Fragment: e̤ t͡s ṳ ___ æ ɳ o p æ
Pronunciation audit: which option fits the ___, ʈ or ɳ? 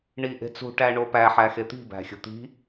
ʈ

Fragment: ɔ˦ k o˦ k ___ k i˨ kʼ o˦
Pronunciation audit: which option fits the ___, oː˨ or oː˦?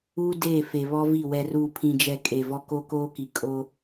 oː˦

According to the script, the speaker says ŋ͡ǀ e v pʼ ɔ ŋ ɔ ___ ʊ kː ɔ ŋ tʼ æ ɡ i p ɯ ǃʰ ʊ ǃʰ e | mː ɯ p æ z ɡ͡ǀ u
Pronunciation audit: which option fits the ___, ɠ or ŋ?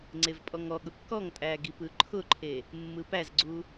ɠ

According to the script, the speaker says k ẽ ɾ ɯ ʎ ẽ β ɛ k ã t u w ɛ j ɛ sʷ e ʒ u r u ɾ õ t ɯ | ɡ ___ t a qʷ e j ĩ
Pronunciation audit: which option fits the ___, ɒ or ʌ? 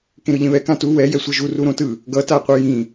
ʌ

